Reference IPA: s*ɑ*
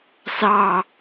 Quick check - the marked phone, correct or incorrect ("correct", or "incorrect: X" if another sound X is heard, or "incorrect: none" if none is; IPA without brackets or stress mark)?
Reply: correct